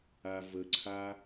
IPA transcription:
avəǀʰa

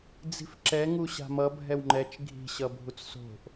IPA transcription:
d͡zi̤fǁɛ ŋuɕa̤mʌ bʱɛwŋ͡ǃɛt͡ʃ ɡʱi̤ɕʌbʱut͡s so̤ʔ

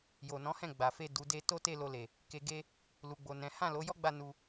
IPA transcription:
jo˨nɔ̃˨˦hɛ̃˦˨ ɡ͡ba˨fe˧ du˨de˧ to˦te˦˨ lo˧le˨ | ke˧ɡe˦ | lu˨ɡ͡bo˨ nɛ̃˨˦ hã˦˨lo˨˦jɔ˦ ɡ͡ba˦˨ nu˧

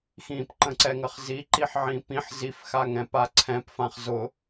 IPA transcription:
xĩpǃə̃ǀɛŋəχ ziǃiħ ʕĩpĩħ zifxaŋ ɛ̃paǀʰɛ̃p fãχzʊ

